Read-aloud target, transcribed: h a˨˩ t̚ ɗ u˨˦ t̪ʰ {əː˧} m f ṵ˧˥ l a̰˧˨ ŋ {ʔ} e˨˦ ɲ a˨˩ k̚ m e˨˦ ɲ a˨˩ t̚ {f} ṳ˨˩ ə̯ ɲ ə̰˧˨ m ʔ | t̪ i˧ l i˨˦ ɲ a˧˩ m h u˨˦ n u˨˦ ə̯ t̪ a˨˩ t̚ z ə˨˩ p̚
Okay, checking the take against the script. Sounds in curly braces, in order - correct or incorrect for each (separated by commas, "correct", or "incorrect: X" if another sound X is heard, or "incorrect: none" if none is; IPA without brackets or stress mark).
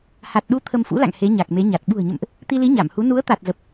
incorrect: ə˧, incorrect: h, incorrect: ɓ